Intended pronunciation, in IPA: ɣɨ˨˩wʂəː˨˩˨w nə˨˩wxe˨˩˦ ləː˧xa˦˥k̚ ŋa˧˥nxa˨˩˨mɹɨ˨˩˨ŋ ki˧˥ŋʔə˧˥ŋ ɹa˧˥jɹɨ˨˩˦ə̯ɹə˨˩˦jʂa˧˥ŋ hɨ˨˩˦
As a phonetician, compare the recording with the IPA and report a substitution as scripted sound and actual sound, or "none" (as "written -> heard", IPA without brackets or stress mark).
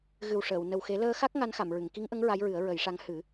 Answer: none